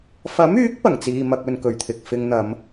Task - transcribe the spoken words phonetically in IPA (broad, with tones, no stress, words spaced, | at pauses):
fɐ˨˥myː˨˥k̚ pɐ˨˩ŋt͡siː˧mɐ˧k̚ ɵ˨nkɵ˨˩ɥt̪ʰɪ˨k̚ fɪ˨˧ŋn̪ɐ˨˧m